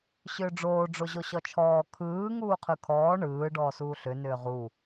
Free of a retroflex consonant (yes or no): no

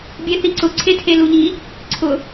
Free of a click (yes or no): no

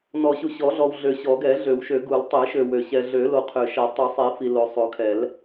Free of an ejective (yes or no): yes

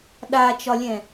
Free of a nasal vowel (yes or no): no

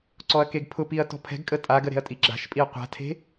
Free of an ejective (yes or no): no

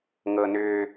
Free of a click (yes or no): yes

